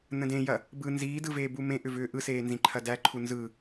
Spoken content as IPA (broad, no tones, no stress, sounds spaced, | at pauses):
n ə̃ d ẽ j ɐ | b ɯ n z iː d ɯ v eː b u m ẽ ʔ ʏ v ʏː ʔ ɯ s eː n z ĩ ǃʰ ɐ d æ ǃʰ u n z ɯ